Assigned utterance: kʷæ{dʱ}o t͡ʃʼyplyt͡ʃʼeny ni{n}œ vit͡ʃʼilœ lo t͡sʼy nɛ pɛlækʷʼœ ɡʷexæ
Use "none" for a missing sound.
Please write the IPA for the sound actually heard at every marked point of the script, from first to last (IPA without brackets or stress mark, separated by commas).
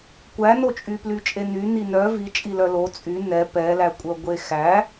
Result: n, n